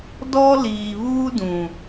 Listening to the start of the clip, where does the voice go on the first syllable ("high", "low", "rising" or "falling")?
high